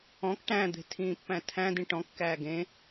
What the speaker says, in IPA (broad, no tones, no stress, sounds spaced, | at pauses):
ɔ̃ k ʈ æ̃ d̪ e̤ tʰ ĩː pː æ̃ tʰ æ̃ d ĩ ʈ ɔ̃ kː æː ɡ ẽ